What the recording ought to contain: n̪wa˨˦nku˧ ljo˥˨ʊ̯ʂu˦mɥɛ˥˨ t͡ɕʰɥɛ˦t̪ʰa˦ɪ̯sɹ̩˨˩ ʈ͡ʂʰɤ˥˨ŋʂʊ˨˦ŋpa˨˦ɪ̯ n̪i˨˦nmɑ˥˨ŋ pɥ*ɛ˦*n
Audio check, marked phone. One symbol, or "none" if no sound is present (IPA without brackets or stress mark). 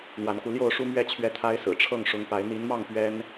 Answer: ɛ˦